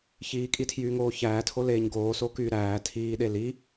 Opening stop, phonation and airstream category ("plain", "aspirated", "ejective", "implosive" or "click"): ejective